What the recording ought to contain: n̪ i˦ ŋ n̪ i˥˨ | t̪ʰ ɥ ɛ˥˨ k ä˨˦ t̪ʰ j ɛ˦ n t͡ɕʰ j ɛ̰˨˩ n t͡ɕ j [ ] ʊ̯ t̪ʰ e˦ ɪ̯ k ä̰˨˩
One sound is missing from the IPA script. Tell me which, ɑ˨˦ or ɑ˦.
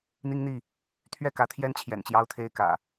ɑ˦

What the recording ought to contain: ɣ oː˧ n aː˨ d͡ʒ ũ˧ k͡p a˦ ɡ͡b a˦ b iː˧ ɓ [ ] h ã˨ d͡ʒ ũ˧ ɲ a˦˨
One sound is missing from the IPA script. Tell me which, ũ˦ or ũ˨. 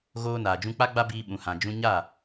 ũ˨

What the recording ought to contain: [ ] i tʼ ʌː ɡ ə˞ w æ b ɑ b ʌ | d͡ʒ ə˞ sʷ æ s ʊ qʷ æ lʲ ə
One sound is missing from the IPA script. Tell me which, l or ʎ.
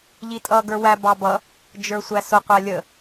ʎ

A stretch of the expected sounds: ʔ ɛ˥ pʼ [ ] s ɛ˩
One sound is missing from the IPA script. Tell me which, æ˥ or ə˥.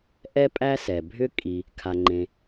æ˥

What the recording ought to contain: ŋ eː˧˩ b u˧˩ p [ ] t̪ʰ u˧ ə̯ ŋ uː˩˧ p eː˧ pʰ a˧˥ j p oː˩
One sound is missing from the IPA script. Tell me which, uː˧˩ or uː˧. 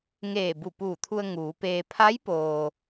uː˧˩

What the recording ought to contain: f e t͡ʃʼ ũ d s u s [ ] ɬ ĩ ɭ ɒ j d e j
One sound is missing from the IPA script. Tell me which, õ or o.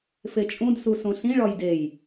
õ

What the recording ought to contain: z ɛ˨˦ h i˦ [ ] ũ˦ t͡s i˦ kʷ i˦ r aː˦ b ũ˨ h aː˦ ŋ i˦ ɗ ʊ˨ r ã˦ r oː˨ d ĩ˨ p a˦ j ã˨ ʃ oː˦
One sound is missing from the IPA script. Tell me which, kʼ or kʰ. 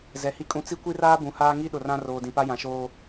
kʼ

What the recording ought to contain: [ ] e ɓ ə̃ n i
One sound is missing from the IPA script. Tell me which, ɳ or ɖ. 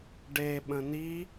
ɖ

